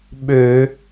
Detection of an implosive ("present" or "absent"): present